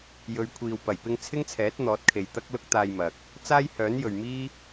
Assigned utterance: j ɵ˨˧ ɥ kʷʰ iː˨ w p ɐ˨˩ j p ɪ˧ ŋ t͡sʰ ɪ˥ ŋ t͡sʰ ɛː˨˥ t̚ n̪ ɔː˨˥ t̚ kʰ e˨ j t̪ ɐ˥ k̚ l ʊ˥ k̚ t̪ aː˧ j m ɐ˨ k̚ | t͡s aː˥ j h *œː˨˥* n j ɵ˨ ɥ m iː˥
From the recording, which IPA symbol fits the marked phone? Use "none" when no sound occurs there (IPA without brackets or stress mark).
œː˨˥